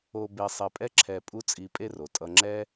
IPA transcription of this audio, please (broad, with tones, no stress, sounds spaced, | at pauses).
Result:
o˧ b e˧ sˤ e˧ pʼ ɛ˥ ǁʰ ɛ˧ pʼ u˥ t͡sʼ i˧ pʼ e˥ r o˩ tʼ ʌ˧ ŋ͡ǁ ɛ˥